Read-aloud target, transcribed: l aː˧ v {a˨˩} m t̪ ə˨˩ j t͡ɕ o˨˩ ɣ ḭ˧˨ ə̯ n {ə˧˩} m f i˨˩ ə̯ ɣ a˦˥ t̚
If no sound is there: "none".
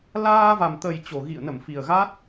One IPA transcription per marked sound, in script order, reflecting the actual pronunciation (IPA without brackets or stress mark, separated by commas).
a˨˩, ə˧˩